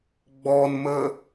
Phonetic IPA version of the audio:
ɡ͡b ɔ n m ə

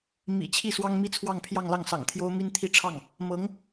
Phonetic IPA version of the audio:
m ḭ˨˩ t͡ɕʰ i˥˩ s w ɑ˥ ŋ m i˥ t͡sʰ w ɑ˥˧ ŋ pʰ j ɑ˥˧ ŋ l ɑ˥˩ ŋ s ɑ̰˨˩ ŋ t̪ʰ j o˥ ʊ̯ m i˥ n t̪ʰ i˥˧ ʈ͡ʂʰ ɑ˥˩ ŋ | m ɤ˧˥ ŋ

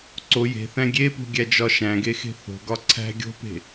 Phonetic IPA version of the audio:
ǀ o j e̤ θ æ̃ ɡʲ e p ṳ ɡʲ æ d͡ʒ ɒ ʃ æ̃ ɡ e x e̤ θ o̤ ɡ ɒ ǀʰ æ̤ ɡʲ o̤ p e̤

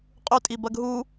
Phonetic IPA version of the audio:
qʼ ʉ tʼ i b ɐ ɡ ɦ u

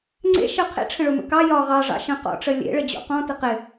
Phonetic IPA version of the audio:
ŋ͡ǀ ḛ ʃ ə qʰ ḛ ʈ͡ʂʰ ə̃ ɭ o m ə̰ k ɑ j ɒ ʁ ɑ ʐ ɑ̰ ʃ ə̃ q ɔ̰ ʈ͡ʂ ə lʲ ḛ ɭ ə d͡ʑ o̰ q ɔ̃ t ə q ɪ

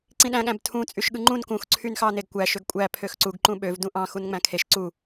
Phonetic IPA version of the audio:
ǀ ĩ ɗ æ̃ ɠ æ̃ b tʰ ũ t͡sʼ y ʃ ɠ ɯ ŋ͡ǃ ũ n k ũ x ǀʰ y n x ɑ n e ɡ kʷ æ ʃ ø ɡ kʷʼ æ pʰ ø x ǀ u ɡ ǃ ũ ɓ ø v d ũ ʔ ɑ̃ x u n ŋ͡m æ̃ kʰ e ʃ ǀ u

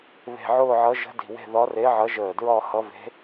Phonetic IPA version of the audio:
β e̤˧˩ ʕ ʊː˥˧ ʕ ʌ˧˥ ʒ ə̤˧˥ d i̤˧˩ w e̤˥˧ ð ɒ˧˥ r e˧˥ ʕ ʌ˧˥ ʒ əː˧˩ d ɹ ɒ˥˧ h ʌ˧˥ v e̤˧˥

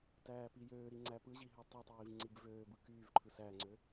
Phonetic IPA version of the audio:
t æː p i j øː ɾ i ŋ͡ǀ æ p ɯ ʑ i ɦ ø tˤ ɯ tˤ iː v ŋ͡ǀ i b v øː b ɯ k yː v ǃʰ ɯ s æ ŋ͡ǀ ø

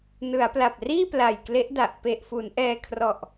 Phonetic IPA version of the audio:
n ɯ˩˦ a̯ p l a˨˩ p̚ r iː˥˩ p l a˨˩ j k l e˦˥ ʔ d a˨˩ ʔ p e˨˩ ʔ f u˩˦ n ʔ ɛː˧ kʰ r ɔ˨˩ ʔ

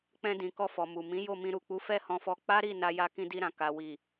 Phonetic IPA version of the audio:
k͡p ɛ̃˧ d ĩ˨ k ɔ˧ f ɔ˨ m u˨ m ĩ˨˦ j o˦˨ m ĩ˧ ɾ u˨ k͡p u˨˦ f ɛ˦˨ h ɔ̃˧ f ɔ˧ k͡p a˦ ɾ i˦˨ n a˧ j a˧ k ĩ˧ d i˧ ɾ ã˨ k a˨ w i˨

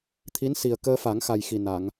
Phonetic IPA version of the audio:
t̪ʰ i˧˥ n s i˨˩ ə̯ k əː˧ f a˨˩˦ ŋ x a˨˩ j x i˨˩ n a˨˩˨ ŋ

